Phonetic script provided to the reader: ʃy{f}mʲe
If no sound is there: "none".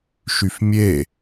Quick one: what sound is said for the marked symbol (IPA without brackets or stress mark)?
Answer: f